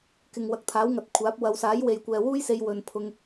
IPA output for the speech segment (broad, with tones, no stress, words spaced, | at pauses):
kɪ˨ŋ wɐ˨˥k̚t̪ʰaː˨˥wŋɐ˨t̚kʷʰaː˨˥p̚ wɐ˨˧wsaː˨˥j we˨jkʷɛː˨wuː˥jse˧j wɵ˨npʰʊ˧ŋ